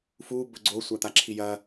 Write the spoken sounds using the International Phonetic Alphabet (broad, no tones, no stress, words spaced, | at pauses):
fu bɵɡ͡ǀo sʷat̪aǁʰijɐ